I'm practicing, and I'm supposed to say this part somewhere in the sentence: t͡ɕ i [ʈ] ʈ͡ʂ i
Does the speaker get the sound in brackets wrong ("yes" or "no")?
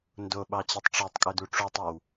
yes